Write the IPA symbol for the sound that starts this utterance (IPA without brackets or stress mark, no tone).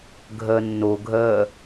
ɡʱ